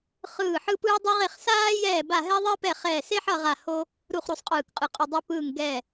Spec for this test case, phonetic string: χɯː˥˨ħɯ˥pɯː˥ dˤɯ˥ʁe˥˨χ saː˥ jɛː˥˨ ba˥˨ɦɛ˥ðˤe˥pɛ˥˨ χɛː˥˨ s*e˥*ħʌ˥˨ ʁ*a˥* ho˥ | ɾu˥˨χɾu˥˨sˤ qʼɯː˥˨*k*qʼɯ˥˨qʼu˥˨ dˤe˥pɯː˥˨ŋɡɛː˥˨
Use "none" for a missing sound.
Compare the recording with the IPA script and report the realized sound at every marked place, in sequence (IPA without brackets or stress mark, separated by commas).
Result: e˥, a˥˨, k